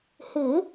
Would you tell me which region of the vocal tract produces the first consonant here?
throat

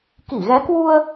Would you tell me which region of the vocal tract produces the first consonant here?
velum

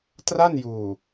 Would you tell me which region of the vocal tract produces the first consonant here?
tongue tip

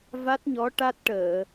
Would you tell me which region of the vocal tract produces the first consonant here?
lips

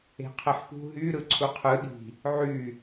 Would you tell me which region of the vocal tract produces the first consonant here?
uvula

